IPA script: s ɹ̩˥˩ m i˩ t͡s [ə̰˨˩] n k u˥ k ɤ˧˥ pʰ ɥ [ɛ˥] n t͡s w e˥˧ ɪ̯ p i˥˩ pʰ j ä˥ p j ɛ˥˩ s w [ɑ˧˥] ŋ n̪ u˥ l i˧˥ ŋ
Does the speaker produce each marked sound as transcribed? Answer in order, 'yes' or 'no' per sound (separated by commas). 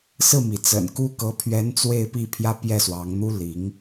yes, no, yes